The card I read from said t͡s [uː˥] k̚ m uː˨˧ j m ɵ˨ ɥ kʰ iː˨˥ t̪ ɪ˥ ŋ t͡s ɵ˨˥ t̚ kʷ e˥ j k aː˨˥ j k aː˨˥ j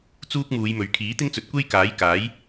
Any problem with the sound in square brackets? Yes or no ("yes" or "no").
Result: no